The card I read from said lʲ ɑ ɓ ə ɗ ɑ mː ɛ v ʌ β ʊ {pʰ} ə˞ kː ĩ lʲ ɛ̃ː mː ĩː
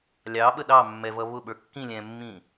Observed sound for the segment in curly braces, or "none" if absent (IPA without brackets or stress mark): ɓ